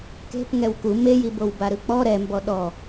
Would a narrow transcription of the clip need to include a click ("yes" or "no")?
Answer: no